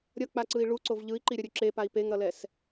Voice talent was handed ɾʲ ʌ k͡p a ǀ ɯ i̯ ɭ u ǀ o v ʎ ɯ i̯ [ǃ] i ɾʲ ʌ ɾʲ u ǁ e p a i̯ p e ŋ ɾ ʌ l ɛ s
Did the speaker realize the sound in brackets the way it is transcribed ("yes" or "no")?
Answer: yes